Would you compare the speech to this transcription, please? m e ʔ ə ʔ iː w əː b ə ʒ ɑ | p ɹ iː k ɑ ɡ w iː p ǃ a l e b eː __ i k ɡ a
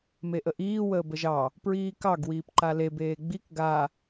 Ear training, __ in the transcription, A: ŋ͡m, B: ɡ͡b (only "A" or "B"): B